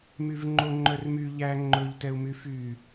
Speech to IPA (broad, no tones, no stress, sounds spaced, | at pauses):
m y v ŋ͡ǃ o ŋ͡ǃ œ r m y ʎ æ ŋ͡ǃ ɵ ʎ t ɛ u̯ m y f y